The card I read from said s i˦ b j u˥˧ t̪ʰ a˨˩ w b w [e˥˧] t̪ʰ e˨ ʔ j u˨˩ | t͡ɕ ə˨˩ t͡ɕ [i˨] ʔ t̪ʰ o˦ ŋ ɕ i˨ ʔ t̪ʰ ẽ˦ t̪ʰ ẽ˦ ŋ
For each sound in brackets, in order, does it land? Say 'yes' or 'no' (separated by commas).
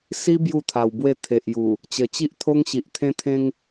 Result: yes, no